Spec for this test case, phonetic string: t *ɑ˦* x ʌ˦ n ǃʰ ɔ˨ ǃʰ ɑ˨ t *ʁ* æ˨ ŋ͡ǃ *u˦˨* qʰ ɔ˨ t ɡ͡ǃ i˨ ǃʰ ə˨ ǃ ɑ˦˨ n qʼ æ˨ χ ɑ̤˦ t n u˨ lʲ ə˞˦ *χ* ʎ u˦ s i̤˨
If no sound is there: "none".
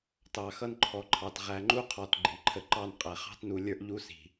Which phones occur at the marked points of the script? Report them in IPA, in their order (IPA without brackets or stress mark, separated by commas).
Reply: ɑ˨, ʁ, u˦, ʔ